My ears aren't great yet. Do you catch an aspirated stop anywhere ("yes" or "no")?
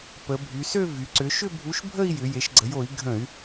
no